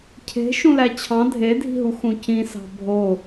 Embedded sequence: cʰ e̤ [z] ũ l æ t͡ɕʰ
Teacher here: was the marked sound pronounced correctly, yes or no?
no